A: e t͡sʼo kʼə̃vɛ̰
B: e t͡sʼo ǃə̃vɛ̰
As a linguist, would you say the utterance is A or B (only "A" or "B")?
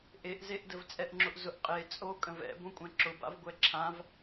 A